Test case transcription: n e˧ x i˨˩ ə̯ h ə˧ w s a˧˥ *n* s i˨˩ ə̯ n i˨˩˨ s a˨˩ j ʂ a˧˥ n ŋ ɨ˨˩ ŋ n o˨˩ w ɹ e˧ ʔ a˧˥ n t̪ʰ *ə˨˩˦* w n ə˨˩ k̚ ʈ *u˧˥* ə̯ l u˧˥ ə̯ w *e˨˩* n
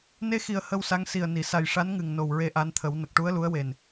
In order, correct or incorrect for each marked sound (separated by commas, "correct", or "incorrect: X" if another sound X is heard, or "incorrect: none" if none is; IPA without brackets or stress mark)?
incorrect: ŋ, correct, correct, correct